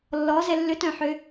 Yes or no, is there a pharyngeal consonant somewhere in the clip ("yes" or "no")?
yes